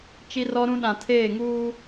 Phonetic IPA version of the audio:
t͡ʃi˦rɔ˦ɾũ˦ ɗã˨tʰeː˦˨ ŋuː˦

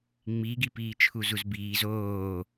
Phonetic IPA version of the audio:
ŋ͡miɡipiː t͡ʃʰuzuzbiːz oː

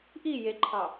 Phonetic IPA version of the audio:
ʔi jeǃʰɑ

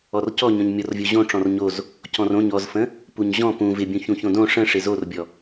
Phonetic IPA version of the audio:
ɔrcɔ ɲɔ̃ɲmʲɔrvʲoʑõ ʈ͡ʂɔ̃rɲoz | cɔ̃rõɲ ɔzfə̃ | puɲʑɔ̃ pũ vɪbʲũ çũçõdõ ʂə̃ʂɪ zorbʲɔ

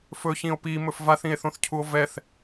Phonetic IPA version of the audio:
fɵçĩo̯ pimɵf vaθĩe̯θõθcʰuo̯ vɛθ

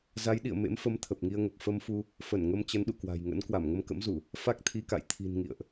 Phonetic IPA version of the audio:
za˨˦jɗḭ˧˨ə̯ mḛ˧˥mfə˨˦m t̪ʰə˨˩p̚ŋi˧ə̯ŋə˨˩p̚ fə˧mfu˧ | fə˧˩nŋə˧m t͡ɕə˨˦nɗṵ˧˨kwa̤˨˩jŋə̰˧˥n kwa˧˩mŋə˧mkə̰˧˥mzu˧˩˨ | fa˦˥k̚t̪ʰi˧ka̰˧˨j t̪ʰi̤˨˩n ŋḭ˧˨ə̯ʔ

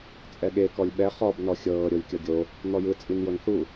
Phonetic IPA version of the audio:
t͡sʼɛɠe kɔlʲɓɛ χɔb nɔxʲɤː ɾʲolʲkʲɔɡʲo | n̪ɔjɯ t͡sʼinjonθu

